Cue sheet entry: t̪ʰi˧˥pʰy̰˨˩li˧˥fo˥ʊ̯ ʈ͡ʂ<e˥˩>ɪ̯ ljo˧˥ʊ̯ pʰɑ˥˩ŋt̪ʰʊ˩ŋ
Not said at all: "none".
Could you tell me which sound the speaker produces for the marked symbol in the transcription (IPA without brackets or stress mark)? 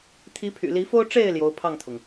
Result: e˥˩